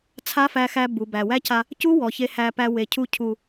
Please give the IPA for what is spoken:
t͡sʰ a˦ f æ˧ x æ˧ b u˨ b æ˨ w æ˦ c a˧ | c u˦ w ɔ˨ ç e˧ h æ˧ p æ˧ w e˨ cʰ u˧ cʰ u˨

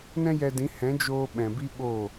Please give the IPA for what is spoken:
n ɛ̃˦ j ɛ˧ d ĩ˨˦ h ɛ̃˨˦ d͡ʒ oː˧ ɓ ɛ̃˨ b i˦ ɓ oː˦˨

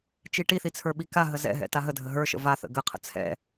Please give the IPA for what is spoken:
t͡ʃ i ʈ i θ i t͡sʰ ə˞ ɓ i k a ɦ ə z ɛ̰ ɦ ɛ̰ t a ɦ ə dʱ ə ɦ ə˞ ʃ ə̰ v a θ ə̰ ɡ ə qʰ ə̰ t͡sʰ ɛ̰

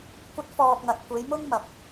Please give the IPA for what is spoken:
kʷ ɐ˧ t̚ f ɔː˨ k̚ ŋ ɐ˨ t̚ kʷ e˨˧ j m ʊ˥ ŋ m ɐ˨ p̚

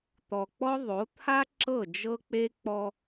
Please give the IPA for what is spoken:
t̪ ɔ˨ k͡p ɔ˦ ðˤ o˨˦ t̪ʰ a˦ ǁ ɤ˦˨ d͡ʒ ɤ˦ k͡p e˦ k͡p ɔ˦

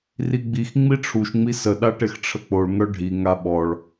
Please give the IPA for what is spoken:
r i ɡ͡b i x ŋ͡m i ʈ͡ʂʰ u ʃ ŋ͡m i s ə ɗ a ʈ e x ʈ͡ʂʰ ə k͡p o ɭ ŋ œ ɖʱ i ŋ a ɓ ɔ ɭ

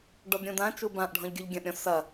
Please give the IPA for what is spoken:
ɖ ɔ d ɾʲ ũ d ã t͡ʃ u b ã ʔ ɖʱ ɔ̃ ʎ ɡʲ u ʎ ɡʲ ɐ̃ ʔ ɾʲ ɔ̃ s ɐ

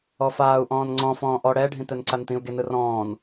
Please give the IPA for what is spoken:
ɔ f aː u̯ ʔ ɔ̃ː n ŋ͡ǀ ɔ̃ f ɔ̃ː ʔ ɔ ɽ ɛ ɖʱ ĩ t̪ ɛ n ǀ a n t̪ ĩ u̯ ɡ e n ɯ r ɔ̃ː n

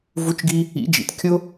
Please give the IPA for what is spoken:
v u˨˦ t͡ʃ ɡ i˧ | ḭ˨˦ d͡ʒ ḭ˨ t kʲ ʊ˦

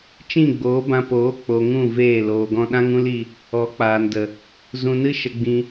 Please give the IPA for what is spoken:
t͡ʃ ĩ˦˨ ɡ͡b oː˨˦ b ã˧ p oː˨˦ k͡p o˨ ŋ ũ˦˨ v eː˦˨ l oː˨ ɡ ɔ̃˧ ɗ ã˦ ŋ ũ˦ l i˧ | ɔ˨˦ k͡p aː˨ n d ə˨ | z ũ˧ n ɨ˦ ʃ ə˧ ɡ͡b ĩ˧

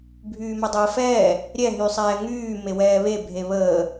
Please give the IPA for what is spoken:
bʱ yː m ɛ dˤ əː f ɛː | ɾʲ ɛ ɦ y sˤ ɛː ŋ yː m e w ɛː β e bʱ e β əː

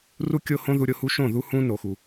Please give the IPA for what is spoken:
r u˦ kʲ o˦ h õ˦ ð u˦ ɾʲ o˦ h u˦ ʃ õ˦˨ ð u˦ h ũ˦ n o˨ x u˨

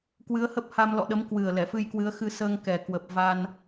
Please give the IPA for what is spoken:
k w ɨ˨˦ ə̯ h ə˦˥ p̚ h a˧ m l ɔ̰˧˨ ɗ ə˨˦ m k w ɨ˨˩ ə̯ l ɛ˧˩ f ɨ˧ j k w ɨ˨˦ ə̯ x ɨ˧ s əː˧ ŋ k ɛ˨˩ k w ə˨˩ p̚ v a˧ n

